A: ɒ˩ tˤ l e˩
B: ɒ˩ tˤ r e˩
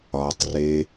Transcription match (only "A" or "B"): B